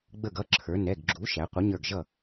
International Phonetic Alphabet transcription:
ɡ͡b ə˧˩ ɡ ʌ˩˧˩ ǁʰ ə˞˩˧ n ɛ˩˧˩ ɡ ɡ͡ǁ u˩˥ ʃ æ˩˧ qʷ ə˩˥ ɲ ə˞˧˩ ɡ ʒ ʌ˥˩

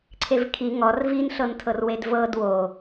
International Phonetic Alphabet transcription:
ǀʰ e v kʰ i ŋ ɔ r v i n ɬ ɤ n tʰ ɤ r w e d v ɤ d w o

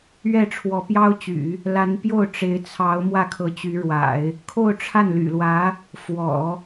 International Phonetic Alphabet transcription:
ɥ ɛ˥˩ ʈ͡ʂʰ w ɔ˧˥ p j ɑ˥ ʊ̯ t͡ɕ y̰˨˩˦ | l a˧˥ n p j o˥˩ ʊ̯ ʈ͡ʂ e˧˥ ɪ̯ t͡sʰ ɑ˧˥ ʊ̯ m w ä˥˩ kʰ ɤ˧˥ t͡ɕ y˧˥ ɻ w a̰˨˩˦ ɪ̯ | kʰ o˥˧ ʊ̯ ʈ͡ʂʰ a˥˩ n l y̰˨˩ l w ä˧˥ | f w ɔ̰˨˩˦

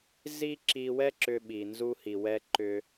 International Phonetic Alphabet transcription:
z i˥ ǁ i˧ w ɛ˥ ǁ ʏ˧ ɓ i˩ n z u˧ h i˩ w ɛ˧ ǃ ʏ˧

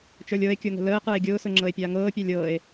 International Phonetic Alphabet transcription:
t͡ʃ ə˞ lʲ ɤ e̯ kʲ ʊ ŋ ə̤ l əː q ə˞ e̯ ɡʲ ʊː s ʊ ŋ͡ǁ ɤ e̯ pʲ aː ŋ ɤː pʲ a lʲ ɤ e̯

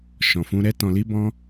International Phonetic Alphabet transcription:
ʃ ɔ̃˨ f ũ˧ ɾ ɛ˦ t ɔ̃˧ l i˦ b ɔ̃˦

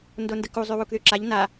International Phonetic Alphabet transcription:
n d o n d ə k u zˤ y w u k ð y ǁ a ʎ n a

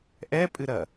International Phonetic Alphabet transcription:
ʔ ɛ pʼ ɨ ɾ ɐ

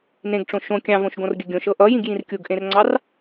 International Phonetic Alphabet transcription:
n ẽ ɡ ʈ͡ʂ õ ʃ õ kʲ ɑ̃ v õ ʃ ɡ õ r ɡʲ ə ɡʲ õ ʃ ɤ ʔ ʌ j ĩ ɡ j ĩ r kʲ u ɡ ʔ ẽ r ŋ͡ǀ ɑ r

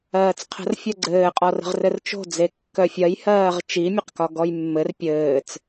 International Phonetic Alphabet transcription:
ɜː t͡s qʰ ə̤ r fʲ ɜ ɡ͡ǀ ɘː qʼ ɔ r ə̤ ʁ r ɘ r t͡ʃ o̤ d͡z e kː œ fʲ ɜ j h ɜː ʁ t͡ʃ i mʲ e q k ɒ ɡ ɔ j mː ɘ r pʲ ɘː t͡s

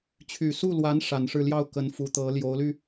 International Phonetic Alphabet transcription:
t͡ɕʰ y˨˩ s u˥˩ l w a˧˥ n ʂ a˨˩ n ʂ ɻ̩˥˧ l j ɑ˥˩ ʊ̯ k ə˧˥ n f u˧˥ t̪ ɤ˧˥ l j o˧˥ ʊ̯ l y˧

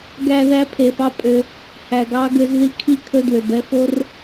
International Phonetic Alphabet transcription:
ɡ æ˨ ð æ˦ pʰ e˨ f ɑ˦ pʼ ø˦ | h æ˨ ɡ ɑ˦ ɡ ø˦ z ð i˦ kʰ i˦ kʰ ɵ˦ d w ø˨ b ɛ˦ f o˦ r

